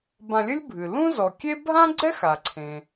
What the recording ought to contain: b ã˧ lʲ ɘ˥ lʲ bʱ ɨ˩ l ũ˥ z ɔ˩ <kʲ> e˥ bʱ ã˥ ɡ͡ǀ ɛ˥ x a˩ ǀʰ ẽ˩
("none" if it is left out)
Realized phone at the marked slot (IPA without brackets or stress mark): kʲ